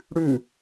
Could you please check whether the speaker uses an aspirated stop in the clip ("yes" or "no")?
no